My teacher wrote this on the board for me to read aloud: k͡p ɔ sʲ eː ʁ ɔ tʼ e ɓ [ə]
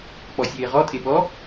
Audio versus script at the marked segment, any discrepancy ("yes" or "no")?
yes